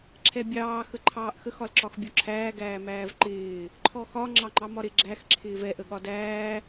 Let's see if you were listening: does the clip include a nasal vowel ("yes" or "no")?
no